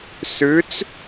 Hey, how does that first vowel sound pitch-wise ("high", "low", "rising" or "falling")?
rising